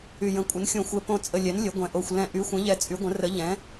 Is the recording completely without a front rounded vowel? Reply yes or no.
no